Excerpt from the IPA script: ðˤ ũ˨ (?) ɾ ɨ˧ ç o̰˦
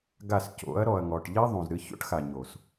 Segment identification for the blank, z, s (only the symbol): z